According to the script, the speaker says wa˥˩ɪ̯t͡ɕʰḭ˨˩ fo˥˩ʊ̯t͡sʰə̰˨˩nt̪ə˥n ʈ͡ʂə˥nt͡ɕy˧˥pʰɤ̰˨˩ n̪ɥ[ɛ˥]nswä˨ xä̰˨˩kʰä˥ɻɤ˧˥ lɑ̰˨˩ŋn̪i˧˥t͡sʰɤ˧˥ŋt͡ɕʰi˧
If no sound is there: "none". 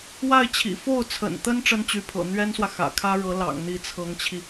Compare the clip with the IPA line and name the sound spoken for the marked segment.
ɛ˥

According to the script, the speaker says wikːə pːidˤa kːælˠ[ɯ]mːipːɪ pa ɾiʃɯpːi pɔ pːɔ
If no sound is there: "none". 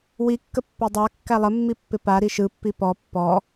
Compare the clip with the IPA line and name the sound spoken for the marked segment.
ə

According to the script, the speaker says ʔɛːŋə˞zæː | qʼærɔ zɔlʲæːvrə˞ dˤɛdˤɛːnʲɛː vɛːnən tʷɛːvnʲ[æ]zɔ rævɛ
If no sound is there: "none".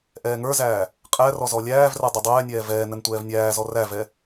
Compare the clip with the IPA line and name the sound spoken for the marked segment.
æː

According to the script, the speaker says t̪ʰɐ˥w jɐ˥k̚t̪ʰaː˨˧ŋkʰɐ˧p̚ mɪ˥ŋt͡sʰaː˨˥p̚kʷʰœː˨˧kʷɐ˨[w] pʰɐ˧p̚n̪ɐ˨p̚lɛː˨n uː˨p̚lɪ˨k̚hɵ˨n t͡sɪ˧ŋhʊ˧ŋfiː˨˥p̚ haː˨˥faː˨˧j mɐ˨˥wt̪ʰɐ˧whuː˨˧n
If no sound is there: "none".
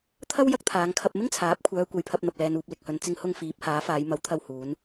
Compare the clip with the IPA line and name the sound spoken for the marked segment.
j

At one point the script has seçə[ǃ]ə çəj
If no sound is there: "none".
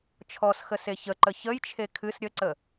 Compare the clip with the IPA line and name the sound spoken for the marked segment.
ǃ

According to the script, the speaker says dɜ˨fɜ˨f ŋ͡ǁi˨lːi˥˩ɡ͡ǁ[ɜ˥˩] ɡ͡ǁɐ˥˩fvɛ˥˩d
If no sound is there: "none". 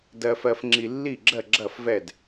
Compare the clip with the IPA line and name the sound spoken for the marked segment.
ɜ˥˩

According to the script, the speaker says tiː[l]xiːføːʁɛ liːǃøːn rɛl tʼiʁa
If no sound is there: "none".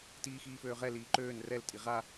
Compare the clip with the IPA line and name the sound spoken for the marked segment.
none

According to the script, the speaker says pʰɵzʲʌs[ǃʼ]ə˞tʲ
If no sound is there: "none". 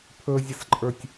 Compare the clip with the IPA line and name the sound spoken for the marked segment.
ǃʼ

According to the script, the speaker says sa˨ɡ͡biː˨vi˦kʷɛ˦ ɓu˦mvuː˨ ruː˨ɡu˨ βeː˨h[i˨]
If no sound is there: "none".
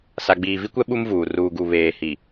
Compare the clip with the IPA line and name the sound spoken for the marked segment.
i˨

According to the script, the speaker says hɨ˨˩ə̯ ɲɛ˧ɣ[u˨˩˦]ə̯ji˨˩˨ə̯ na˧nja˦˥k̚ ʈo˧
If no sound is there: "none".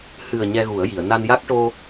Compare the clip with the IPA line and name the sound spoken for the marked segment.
u˨˩˦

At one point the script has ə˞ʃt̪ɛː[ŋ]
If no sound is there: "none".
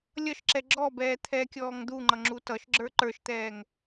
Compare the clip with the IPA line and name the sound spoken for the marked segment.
ŋ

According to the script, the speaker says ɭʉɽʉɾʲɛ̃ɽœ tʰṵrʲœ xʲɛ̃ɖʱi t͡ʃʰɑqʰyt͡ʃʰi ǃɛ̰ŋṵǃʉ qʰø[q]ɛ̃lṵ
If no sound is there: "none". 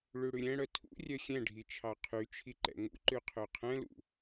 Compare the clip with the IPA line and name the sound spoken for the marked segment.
qʰ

